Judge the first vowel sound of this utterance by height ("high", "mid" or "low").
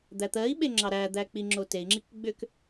low